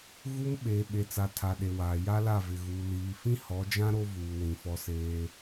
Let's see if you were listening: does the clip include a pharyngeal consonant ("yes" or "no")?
no